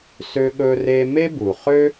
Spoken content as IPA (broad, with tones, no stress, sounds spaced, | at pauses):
s ø˦ ɠ ɵ˦ r e˦ m e˥ b u˩ χ ø˥